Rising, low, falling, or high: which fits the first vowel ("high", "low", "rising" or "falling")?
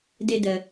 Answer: low